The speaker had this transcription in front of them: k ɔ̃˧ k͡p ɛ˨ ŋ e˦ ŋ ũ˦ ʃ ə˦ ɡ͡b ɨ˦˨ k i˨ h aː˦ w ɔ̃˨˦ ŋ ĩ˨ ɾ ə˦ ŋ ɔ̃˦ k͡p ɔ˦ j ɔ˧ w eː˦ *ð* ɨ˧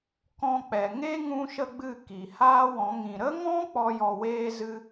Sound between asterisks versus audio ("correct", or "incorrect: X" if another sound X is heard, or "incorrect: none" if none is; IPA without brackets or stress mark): incorrect: z